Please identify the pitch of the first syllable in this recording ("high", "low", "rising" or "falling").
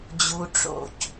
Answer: low